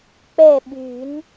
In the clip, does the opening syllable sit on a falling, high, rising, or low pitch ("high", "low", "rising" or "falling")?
falling